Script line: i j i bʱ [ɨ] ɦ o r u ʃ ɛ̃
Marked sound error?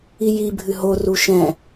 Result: no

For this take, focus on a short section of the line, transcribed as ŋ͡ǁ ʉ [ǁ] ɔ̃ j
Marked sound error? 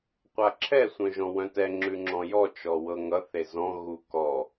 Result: yes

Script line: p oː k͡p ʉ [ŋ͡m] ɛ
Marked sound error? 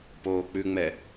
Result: no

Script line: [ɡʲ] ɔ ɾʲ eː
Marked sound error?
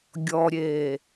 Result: no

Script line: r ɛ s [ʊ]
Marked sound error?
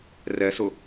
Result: no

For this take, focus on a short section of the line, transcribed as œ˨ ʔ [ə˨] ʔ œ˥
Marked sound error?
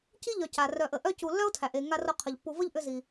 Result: no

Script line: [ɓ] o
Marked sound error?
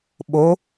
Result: no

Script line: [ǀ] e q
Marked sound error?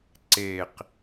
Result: no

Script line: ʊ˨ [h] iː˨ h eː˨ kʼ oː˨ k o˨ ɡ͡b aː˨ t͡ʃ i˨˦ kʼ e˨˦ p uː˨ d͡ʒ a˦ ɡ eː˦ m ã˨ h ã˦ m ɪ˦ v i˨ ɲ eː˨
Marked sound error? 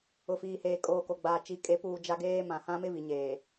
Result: yes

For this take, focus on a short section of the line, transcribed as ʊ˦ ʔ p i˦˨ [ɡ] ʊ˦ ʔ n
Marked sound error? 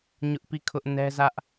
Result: yes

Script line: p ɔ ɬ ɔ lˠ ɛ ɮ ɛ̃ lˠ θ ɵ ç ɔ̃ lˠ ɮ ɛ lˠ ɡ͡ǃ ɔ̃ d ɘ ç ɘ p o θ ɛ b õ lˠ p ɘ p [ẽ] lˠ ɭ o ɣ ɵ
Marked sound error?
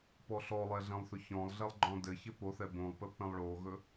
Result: yes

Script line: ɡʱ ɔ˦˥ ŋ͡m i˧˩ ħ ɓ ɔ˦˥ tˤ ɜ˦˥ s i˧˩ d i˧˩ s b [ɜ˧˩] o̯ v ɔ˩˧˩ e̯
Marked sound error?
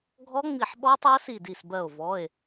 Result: no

